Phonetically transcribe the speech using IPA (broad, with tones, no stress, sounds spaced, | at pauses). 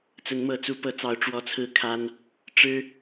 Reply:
t͡s ə˨˦ n m ɤ˨˦ t͡s u˨˦ p ɤ˨˦ t͡s ɑ˨˦ ʊ̯ ʈ͡ʂ w ɔ˦ t͡sʰ ɹ̩˥˨ kʰ a˦ n | ʈ͡ʂ ɻ̩˦